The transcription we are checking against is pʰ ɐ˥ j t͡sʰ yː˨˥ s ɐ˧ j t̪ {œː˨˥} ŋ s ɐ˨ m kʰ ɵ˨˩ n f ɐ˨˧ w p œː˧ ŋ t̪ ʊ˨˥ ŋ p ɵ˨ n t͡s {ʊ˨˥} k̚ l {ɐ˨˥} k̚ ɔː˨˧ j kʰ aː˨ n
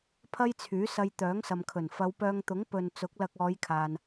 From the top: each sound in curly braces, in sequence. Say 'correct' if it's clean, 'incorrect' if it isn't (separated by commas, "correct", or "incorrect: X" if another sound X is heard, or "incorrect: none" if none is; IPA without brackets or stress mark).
correct, correct, incorrect: ɐ˧